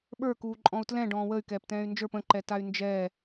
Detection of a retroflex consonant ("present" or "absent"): present